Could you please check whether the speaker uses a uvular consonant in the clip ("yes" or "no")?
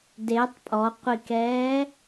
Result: yes